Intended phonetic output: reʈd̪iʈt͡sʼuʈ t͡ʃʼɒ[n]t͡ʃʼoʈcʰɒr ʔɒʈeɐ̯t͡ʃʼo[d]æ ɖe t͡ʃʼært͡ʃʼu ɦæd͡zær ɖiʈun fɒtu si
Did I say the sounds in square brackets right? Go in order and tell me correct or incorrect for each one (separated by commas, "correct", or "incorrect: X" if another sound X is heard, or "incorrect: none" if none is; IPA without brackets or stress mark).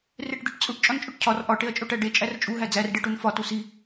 correct, incorrect: ʈ